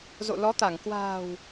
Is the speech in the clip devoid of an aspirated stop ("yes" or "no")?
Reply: yes